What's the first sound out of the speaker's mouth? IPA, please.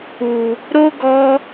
u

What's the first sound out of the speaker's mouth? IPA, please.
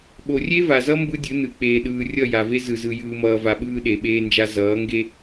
ɓ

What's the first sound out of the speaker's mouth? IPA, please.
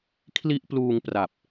kʰ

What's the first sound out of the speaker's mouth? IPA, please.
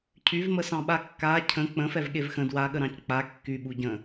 cʰ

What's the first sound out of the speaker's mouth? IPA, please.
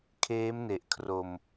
kʰ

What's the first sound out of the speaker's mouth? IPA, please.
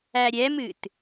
æ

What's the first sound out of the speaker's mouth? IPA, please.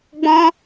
ɡ͡b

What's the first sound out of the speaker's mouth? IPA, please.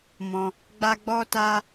m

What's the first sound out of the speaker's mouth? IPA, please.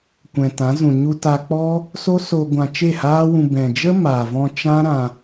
kʷ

